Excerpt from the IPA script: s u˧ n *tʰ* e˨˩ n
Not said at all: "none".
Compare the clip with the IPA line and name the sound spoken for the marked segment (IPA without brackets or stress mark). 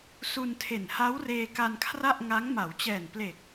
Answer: tʰ